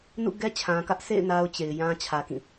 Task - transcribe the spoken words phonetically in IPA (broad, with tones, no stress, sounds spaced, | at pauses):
n ṵ˦˨ ɡ ɛ˦ t͡ɕʰ ã˨ k ä˦ ʔ s ḛ˦˨ ɪ̯ n a˦ ʊ̯ t͡ɕ e˨ ɪ̯ j ã˦ t͡ɕʰ ä˨ k ĩ˦˨